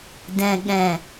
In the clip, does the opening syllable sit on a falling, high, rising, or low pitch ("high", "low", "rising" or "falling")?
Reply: low